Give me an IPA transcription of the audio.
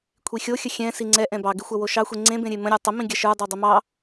kʷʰixʲoxʲə xʲɛ̃ siŋ͡ǀɛʔɛ̃ bɑɡɪxʷɐ woʃɑxʷe ŋ͡ǀẽbẽ ɾʲemə̃ɾʲə˞ tˤəmĩɡʲɐ ʃə˞dˤe dˤəmɑ

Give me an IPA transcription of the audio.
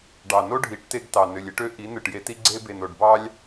ɖɑ˨no˦ɖʱi˨˦ʈte˧ɡ tɑ˨nø˨lʲe˦ʈø˦ ʔi˨˦ nɯ˨ʈje˧ti˦ ɡ͡ǀe˦ be˨no˨ɖ bɑ˦lʲ

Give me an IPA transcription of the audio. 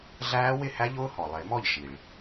ɮæː˦˥wɪ˥˩hæ˦˥ʎʊː˦˥ hɔ˩lˠɪ˨˩˦mɔ˥˩ʎ ʃi˩ɭ

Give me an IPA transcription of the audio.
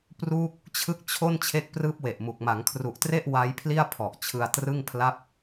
pruː˥˩k̚ | t͡ɕʰɯ˥˩k̚ t͡ɕʰo˥˩n t͡ɕʰe˦˥k̚prɯː˦˥p̚ we˨˩ʔmu˨˩k̚ ma˩˦ŋkʰru˨˩ʔtre˥˩ʔ wa˦˥jpʰli˥˩a̯pʰɔ˨˩ʔ t͡ɕʰɯ˧a̯trɯ˥˩ŋpʰla˥˩p̚

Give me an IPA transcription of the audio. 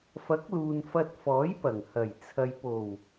fɐ˨˥k̚luː˨n fɐ˧t̚fɔː˨˥jpɐ˨˩ŋ hɐ˨˩j t͡sʰɐ˨jpo˨˩w

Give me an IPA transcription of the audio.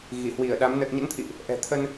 ɣi˧˩ hwi˧˩ə̯ɗa˨˦m nə˨˩t̚ɲə̰˧˥nt̪ʰḭ˧˨ʔ | ʔɛ̤˨˩t̪ʰə˧n

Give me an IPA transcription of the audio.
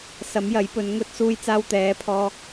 sɐ˨˥mjɐ˨˥jpɵ˨˧n ŋɵ˧t̚suː˧jt͡saː˧w t̪ɛː˨˧pʰɔː˧

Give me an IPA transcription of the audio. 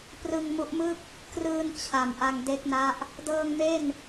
prɯ˧ŋmu˦˥ʔmɯ˥˩k̚ | krɯː˧n t͡ɕʰa˨˩mʔa˧ŋ de˦˥k̚na˦˥ʔ | dɤː˧ŋme˥˩n

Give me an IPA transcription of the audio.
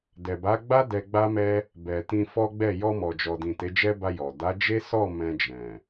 dɛ˨ba˨˦ ɡ͡ba˦ dɛ˧ɡ͡ba˦mɛ˦ | bɛ˨ tĩ˧fɔ˦ɡ͡bɛ˦˨ jɔ˧mɔ˨d͡ʒɔ˨dĩ˨ te˨˦d͡ʒɛ˦ba˧ jɔ˨ da˨˦d͡ʒe˦ sɔ˦˨ mɛ̃˧d͡ʒɛ̃˨

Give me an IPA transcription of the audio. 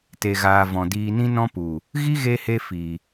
te˨ɣaː˨ vɔ̃˨diː˧ nĩ˦nɔ̃˦pu˨ | ɣi˦ɣe˧he˧ fi˨

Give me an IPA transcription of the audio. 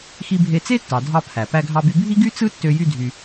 xi˧bʱe˧t͡se˥tːɑ˩ dʱɑ˧ pʰæ˩ pæ˧ɡʱɑ˧by˧ bʱi˥ɡy˥ t͡sɯ˥tːø˧ jy˥dʱy˧

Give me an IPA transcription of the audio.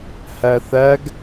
hæθæɡ

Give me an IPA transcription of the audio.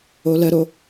oləɾo

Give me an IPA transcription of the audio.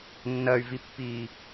nːɐy̯vipːiː

